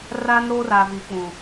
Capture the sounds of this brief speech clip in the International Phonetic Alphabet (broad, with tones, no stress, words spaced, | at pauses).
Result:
raː˦nɾoː˦raː˨ vi˨k͡pũ˨